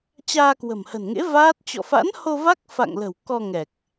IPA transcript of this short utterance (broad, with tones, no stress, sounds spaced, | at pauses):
t͡ɕ aː˧ k w ə̤˨˩ m h ə̤˨˩ n ŋ ḛ˧˥ v aː˦˥ t̚ t͡ɕ ɔ̰˧˨ f a̰˧˥ n h o˧ v a˦˥ k̚ f a̰˧˨ ŋ l ə̤˨˩ w k ɔ˧ ŋ ɛ˨˩ k̚